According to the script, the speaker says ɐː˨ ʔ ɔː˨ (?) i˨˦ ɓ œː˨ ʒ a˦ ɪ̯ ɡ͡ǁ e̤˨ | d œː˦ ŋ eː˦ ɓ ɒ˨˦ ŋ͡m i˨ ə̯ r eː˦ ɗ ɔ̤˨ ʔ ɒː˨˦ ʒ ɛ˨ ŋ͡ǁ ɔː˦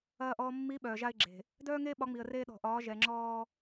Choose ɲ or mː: mː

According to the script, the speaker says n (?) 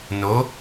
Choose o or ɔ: o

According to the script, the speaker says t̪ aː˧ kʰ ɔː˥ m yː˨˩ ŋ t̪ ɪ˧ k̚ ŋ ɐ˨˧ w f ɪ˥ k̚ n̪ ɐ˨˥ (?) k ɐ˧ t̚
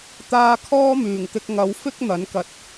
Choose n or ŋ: n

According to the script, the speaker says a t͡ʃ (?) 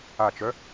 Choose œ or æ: œ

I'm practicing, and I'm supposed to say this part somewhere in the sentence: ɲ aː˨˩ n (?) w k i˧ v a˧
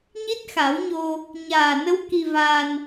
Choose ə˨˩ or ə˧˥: ə˧˥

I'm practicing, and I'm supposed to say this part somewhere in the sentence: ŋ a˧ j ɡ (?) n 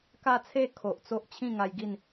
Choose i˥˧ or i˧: i˥˧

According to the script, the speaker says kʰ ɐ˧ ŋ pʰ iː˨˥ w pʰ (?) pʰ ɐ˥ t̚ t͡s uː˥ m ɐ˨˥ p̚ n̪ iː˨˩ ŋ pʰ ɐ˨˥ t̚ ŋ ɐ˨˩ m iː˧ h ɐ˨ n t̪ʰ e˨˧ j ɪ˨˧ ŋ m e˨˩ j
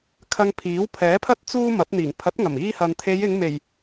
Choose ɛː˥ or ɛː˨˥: ɛː˨˥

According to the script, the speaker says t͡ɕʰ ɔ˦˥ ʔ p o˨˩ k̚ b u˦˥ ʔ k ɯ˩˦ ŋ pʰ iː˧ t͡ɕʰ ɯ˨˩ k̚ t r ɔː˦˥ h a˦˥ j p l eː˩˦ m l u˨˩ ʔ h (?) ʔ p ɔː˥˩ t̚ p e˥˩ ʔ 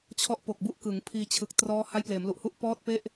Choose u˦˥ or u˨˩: u˦˥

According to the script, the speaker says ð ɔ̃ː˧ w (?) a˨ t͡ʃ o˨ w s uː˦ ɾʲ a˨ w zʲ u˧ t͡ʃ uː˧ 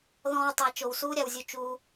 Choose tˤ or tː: tˤ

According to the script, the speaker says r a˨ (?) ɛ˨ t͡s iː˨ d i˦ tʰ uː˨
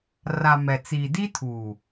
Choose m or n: m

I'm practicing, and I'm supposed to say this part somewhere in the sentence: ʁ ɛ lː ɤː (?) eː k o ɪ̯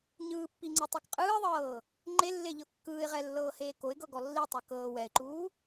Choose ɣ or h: h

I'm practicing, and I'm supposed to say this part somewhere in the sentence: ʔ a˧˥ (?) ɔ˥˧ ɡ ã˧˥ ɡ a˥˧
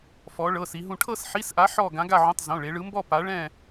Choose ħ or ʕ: ħ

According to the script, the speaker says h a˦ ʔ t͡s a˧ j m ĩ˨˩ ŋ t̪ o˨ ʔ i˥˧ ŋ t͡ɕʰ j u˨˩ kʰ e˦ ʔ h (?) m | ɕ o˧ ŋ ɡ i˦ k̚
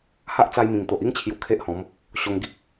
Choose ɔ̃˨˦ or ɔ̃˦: ɔ̃˨˦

